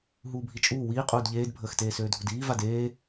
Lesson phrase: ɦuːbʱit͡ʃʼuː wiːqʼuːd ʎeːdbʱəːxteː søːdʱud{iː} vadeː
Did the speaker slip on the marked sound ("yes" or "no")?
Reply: no